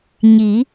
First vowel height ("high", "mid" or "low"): high